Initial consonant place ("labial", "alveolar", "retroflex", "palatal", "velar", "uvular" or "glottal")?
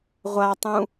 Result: uvular